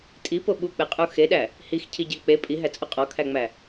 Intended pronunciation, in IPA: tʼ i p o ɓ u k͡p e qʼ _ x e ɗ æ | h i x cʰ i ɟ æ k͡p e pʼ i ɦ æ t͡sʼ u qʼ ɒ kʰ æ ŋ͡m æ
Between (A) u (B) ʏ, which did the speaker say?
A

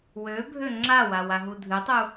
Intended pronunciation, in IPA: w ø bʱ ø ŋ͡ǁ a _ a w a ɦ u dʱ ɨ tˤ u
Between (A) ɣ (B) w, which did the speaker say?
B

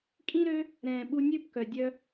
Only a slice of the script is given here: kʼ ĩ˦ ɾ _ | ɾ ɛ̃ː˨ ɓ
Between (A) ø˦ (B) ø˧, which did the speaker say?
A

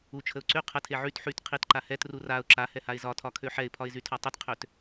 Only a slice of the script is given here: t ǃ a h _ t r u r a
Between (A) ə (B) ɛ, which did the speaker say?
B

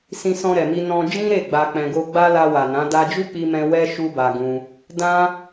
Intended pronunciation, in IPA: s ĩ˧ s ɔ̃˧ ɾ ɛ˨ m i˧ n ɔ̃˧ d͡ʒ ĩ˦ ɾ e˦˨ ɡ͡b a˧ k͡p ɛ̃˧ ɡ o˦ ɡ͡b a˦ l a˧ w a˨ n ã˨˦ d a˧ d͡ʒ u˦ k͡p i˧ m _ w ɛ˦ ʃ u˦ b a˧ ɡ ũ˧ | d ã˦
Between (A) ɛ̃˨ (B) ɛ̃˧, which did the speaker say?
B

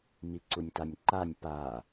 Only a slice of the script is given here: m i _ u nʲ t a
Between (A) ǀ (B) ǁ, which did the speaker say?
A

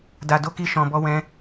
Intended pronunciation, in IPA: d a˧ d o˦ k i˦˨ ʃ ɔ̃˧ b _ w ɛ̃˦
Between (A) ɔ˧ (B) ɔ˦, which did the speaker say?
B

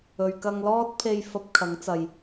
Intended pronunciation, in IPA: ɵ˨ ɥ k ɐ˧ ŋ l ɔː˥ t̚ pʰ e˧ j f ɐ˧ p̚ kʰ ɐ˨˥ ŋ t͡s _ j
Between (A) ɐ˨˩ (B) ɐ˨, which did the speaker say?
B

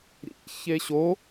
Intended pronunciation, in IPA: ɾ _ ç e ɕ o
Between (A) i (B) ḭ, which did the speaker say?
B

